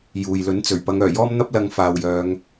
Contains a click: no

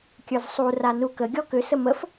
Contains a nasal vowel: no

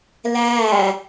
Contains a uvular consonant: no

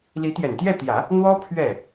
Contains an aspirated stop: yes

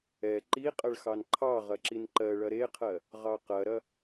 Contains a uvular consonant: yes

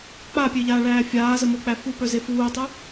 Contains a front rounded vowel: yes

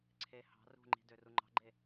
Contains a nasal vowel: no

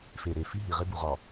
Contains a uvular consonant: yes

